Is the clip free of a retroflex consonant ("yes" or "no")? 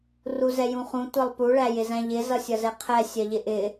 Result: no